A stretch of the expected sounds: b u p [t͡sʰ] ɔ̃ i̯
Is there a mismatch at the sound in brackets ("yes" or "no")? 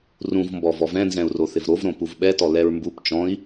yes